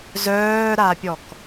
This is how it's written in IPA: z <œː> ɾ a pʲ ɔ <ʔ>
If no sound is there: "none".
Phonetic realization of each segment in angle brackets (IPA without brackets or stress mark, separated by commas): œː, k